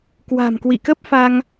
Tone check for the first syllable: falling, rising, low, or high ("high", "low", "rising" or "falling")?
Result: low